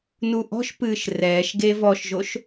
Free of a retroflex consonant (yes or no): yes